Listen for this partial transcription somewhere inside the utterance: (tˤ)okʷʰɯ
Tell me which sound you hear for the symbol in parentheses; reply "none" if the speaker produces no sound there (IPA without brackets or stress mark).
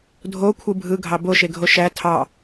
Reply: dʱ